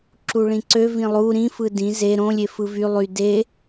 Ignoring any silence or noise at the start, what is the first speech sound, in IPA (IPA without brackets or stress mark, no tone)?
ǁ